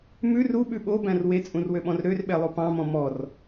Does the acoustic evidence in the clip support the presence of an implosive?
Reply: yes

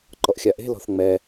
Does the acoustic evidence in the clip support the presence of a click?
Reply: yes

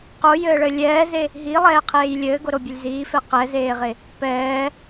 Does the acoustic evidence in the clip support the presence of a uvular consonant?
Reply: yes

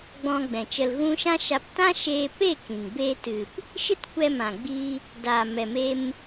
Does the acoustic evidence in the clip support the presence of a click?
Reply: no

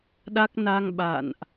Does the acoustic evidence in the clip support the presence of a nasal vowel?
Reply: no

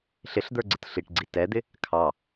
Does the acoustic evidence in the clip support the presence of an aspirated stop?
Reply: yes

